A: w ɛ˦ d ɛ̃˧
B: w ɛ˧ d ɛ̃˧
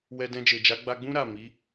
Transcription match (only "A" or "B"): B